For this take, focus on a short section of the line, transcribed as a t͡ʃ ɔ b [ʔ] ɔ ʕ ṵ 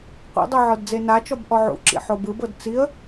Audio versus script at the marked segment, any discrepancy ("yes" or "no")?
no